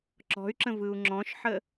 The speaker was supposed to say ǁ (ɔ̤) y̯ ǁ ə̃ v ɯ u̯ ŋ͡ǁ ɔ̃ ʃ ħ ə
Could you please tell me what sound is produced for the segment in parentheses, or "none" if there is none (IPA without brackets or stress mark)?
ɔ̤